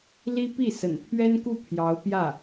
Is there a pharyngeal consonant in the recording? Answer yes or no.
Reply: no